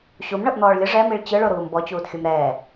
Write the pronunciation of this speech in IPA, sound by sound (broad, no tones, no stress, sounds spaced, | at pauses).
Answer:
ɕ u m ɳ ɤ ʔ n̪ ɔː ɭ lʲ ɯ ʐ ɛ m i ɭ t͡ɕ ɯ ɭ o ɾ uː m b ɔ t͡ɕ uː t xʲ u m ɾ ɛː